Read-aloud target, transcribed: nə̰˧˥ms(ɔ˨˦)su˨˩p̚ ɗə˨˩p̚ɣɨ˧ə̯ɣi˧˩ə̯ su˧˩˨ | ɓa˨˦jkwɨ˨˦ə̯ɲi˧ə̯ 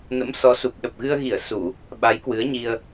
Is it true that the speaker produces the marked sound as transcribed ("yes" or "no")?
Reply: yes